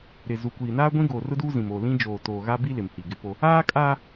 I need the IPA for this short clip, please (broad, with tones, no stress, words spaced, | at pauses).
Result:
ɾɪ˨zu˨kʷiː˨ naː˦ɡʷĩ˦ɡoː˨r ʊ˦duː˦ zĩ˨moː˨ lĩ˦d͡ʒoː˨ toː˨ɣa˦bi˦ lɪ˨mhi˨ ɡɪ˦po˦ | aː˦kʼaː˦